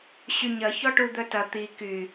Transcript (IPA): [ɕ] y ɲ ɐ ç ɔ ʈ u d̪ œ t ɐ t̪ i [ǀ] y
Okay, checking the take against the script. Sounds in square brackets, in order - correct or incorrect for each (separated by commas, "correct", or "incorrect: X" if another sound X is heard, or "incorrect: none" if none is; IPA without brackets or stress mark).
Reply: correct, incorrect: k